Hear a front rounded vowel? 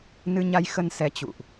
no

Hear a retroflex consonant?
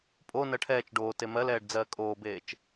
yes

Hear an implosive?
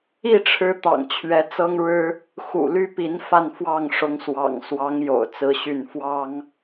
no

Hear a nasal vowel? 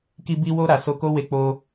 no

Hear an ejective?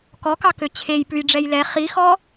no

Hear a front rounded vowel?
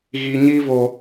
no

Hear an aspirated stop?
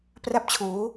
yes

